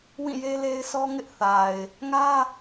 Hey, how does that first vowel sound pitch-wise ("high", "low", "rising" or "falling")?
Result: falling